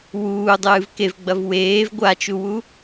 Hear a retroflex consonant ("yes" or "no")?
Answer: no